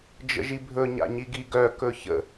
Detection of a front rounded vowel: present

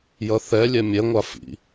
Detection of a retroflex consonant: absent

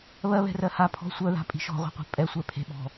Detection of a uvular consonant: present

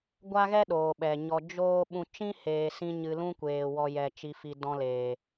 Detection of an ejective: absent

